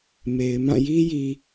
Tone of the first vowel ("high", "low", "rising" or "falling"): low